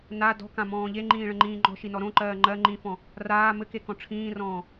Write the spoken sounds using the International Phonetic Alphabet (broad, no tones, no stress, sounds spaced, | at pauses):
n a d ɔ̤ k ã m ɔ̃ː ʎ e ŋ͡ǃ ĩː ɭ ə̃ ŋ͡ǃ ĩː ŋ͡ǃ ɔ̤ ʃ i n ɔ ɾ õ ǃ ɜː ŋ͡ǃ ɜ ŋ͡ǃ ĩ f ɔ̃ | r aː m ɘ k e k ɔ̃ ʈ͡ʂʰ ĩː r ɔ̃ː